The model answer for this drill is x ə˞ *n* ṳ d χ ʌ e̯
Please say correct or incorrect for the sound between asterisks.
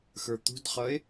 incorrect